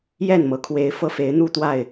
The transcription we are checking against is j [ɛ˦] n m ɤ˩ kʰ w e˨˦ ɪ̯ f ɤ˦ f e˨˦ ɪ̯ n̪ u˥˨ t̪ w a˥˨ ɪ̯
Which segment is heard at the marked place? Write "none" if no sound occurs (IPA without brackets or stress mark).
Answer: ɛ˥˨